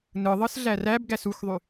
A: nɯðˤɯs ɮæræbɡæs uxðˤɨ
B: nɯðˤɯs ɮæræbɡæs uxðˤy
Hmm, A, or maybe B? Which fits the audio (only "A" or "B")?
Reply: B